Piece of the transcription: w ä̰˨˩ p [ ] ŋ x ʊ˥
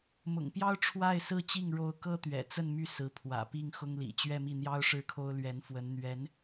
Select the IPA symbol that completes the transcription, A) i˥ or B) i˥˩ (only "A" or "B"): B